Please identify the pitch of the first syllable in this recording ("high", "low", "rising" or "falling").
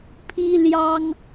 high